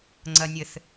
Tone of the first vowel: low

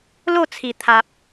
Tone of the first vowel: falling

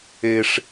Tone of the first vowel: high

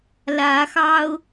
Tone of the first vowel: rising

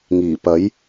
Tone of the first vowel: low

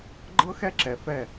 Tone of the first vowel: high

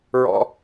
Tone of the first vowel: high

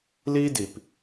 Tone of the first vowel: high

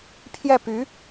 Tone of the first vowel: falling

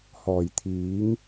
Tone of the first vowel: low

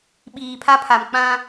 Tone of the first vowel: low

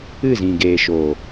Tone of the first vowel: falling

